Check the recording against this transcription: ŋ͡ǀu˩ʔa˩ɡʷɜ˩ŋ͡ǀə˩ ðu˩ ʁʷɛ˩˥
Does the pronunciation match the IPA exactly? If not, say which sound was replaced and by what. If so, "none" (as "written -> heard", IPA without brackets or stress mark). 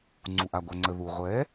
none